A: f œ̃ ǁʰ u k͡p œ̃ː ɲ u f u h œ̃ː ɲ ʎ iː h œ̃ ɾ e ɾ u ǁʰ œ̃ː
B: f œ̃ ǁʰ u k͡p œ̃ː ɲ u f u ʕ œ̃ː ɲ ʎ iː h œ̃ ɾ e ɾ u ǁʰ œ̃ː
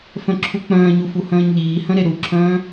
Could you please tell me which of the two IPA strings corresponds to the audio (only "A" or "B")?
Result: A